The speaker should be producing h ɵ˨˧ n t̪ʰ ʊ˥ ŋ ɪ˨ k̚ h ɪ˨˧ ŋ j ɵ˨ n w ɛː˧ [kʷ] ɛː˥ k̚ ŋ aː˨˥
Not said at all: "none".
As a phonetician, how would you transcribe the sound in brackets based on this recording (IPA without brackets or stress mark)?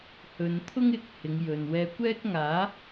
kʷ